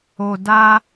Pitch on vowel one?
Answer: low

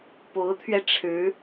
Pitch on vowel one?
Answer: rising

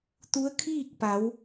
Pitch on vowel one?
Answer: rising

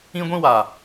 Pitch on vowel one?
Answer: high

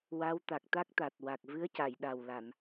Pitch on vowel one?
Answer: rising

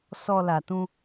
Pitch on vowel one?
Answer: low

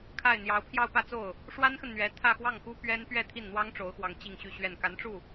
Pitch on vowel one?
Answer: falling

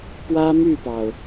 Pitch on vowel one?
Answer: high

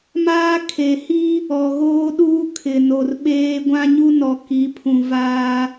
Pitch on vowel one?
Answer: high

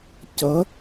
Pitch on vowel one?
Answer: rising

